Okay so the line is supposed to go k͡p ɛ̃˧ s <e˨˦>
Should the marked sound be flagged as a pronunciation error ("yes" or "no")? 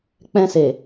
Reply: yes